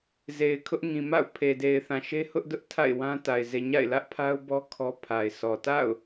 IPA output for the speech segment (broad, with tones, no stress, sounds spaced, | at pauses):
z e˨ ɪ̯ kʰ ʊ˦ ʔ ŋ ĩ˨ m a̰˦˨ ʊ̯ pʰ e˨ d e˨ ɪ̯ θ ã˨ ʃ e˦ h ʊ˦ ʔ d ʊ˦ ʔ tʰ a̰˦˨ ɪ̯ w ã˦ t a˨ ɪ̯ z e˨ ɲ a̰˦˨ ɪ̯ l ä˦ ʔ pʰ a˦ ʊ̯ b ɔ˦ kʰ ɔ˦ pʰ a˨ ɪ̯ s ɔ˨ t a̰˦˨ ʊ̯